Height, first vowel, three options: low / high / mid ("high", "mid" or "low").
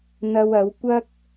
low